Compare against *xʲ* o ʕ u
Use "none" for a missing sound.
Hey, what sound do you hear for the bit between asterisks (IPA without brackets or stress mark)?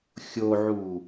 xʲ